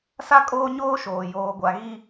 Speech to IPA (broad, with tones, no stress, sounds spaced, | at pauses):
s a˦ kʼ oː˦ ɲ oː˦ ʃ oː˨ j oː˨ ɡʷ a˨ ɣ i˦